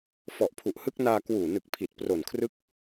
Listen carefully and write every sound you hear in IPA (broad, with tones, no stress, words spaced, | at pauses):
fɔ˨˩ʔpʰu˨˩ʔhɯ˦˥k̚naː˧ kwuː˨˩nɯ˨˩k̚pʰi˨˩t̚ pro˨˩nkʰrɯ˦˥k̚